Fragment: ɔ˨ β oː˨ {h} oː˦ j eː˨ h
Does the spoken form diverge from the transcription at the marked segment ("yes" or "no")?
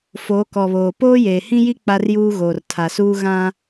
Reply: yes